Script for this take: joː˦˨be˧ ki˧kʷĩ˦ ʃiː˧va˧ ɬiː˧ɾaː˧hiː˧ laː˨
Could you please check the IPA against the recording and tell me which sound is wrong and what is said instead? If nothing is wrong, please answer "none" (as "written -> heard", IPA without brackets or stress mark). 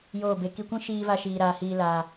ɬ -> ʃ